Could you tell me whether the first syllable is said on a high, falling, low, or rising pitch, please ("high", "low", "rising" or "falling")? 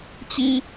high